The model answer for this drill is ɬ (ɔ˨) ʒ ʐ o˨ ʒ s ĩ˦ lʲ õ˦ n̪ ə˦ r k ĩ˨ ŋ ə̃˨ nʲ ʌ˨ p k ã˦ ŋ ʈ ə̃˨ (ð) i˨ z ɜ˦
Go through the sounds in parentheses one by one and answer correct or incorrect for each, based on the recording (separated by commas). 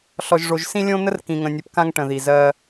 correct, correct